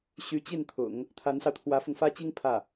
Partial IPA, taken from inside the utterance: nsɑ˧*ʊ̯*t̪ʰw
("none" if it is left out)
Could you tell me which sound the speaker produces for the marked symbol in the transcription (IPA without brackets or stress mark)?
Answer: ʊ̯